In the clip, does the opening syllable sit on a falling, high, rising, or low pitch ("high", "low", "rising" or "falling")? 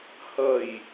low